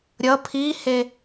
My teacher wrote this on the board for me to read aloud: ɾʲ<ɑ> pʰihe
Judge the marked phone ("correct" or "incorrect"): incorrect